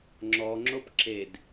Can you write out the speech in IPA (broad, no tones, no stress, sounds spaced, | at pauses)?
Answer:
ŋ͡ǁ ɔ ŋ͡ǁ o p ǁ e d